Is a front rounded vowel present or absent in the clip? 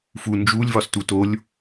absent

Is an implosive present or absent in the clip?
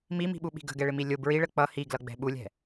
present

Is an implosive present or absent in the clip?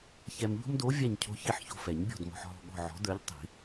present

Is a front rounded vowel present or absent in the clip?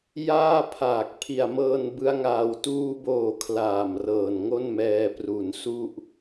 absent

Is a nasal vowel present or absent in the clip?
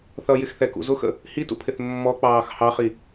absent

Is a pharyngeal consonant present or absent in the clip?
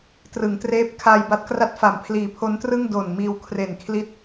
absent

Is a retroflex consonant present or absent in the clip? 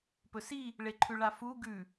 present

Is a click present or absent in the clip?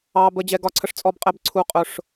present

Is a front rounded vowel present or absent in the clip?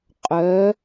present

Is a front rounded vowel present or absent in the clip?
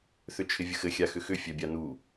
present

